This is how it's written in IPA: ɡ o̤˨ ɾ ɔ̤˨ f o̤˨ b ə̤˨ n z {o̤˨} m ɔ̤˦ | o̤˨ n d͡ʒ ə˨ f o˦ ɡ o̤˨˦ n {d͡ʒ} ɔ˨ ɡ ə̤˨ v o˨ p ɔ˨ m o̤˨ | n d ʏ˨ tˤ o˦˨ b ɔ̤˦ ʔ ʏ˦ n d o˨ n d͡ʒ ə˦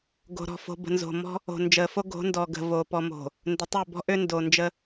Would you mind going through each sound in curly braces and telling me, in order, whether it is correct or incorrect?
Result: correct, incorrect

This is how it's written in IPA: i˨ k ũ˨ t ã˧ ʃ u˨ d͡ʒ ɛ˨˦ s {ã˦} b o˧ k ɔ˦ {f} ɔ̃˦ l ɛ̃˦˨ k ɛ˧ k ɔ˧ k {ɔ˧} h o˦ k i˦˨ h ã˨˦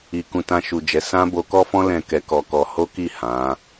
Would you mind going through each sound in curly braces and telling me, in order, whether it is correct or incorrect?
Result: correct, correct, correct

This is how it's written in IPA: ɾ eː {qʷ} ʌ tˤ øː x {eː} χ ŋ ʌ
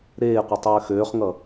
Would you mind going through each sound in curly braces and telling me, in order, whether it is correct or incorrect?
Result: correct, incorrect

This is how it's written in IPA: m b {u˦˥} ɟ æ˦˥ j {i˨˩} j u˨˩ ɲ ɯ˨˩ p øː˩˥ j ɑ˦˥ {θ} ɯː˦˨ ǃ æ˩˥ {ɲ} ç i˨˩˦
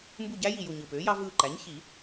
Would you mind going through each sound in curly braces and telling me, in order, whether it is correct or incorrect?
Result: incorrect, correct, incorrect, correct

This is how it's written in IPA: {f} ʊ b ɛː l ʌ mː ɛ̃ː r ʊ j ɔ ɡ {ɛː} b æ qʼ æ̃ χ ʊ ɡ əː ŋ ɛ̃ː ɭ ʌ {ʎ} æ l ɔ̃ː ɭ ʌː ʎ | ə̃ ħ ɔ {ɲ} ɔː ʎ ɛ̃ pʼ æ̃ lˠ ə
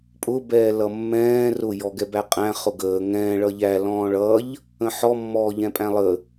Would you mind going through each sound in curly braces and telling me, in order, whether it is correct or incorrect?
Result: incorrect, incorrect, correct, incorrect

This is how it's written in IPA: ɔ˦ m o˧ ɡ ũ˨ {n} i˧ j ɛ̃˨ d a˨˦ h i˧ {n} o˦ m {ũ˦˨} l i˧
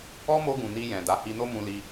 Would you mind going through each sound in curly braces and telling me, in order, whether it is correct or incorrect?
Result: correct, correct, incorrect

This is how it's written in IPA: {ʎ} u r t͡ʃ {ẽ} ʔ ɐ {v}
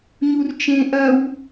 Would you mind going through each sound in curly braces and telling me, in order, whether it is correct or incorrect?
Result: incorrect, correct, incorrect

